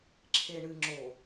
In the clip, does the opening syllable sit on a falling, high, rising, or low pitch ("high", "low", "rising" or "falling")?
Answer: low